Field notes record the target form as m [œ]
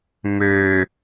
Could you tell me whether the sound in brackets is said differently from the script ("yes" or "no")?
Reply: yes